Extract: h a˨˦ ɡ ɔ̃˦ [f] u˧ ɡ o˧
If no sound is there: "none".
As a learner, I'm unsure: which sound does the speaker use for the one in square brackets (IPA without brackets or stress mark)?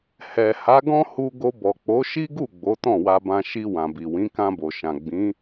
h